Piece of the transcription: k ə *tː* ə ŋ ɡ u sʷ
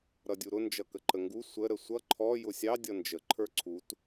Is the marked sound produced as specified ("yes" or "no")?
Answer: no